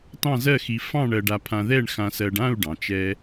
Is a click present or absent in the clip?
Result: absent